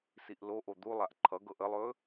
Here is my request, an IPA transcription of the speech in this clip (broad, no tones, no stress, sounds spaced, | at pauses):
s i ʔ l o ʔ o d̪ u lˠ a ʔ ǃʰ ʌ ɡ ɤ ʔ ə lˠ ɵː